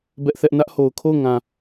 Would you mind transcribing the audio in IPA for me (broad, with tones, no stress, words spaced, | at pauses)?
bɛ˦ʔθɛ˦ʔ nä˦ʔho˨ʊ̯kʰo˦˨ʊ̯ŋã˨